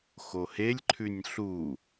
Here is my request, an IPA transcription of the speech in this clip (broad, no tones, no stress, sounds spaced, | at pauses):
x o h e lʲ ǃʰ ʉ nʲ ɬ u